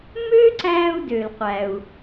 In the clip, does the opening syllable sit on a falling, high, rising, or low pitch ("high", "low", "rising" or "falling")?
high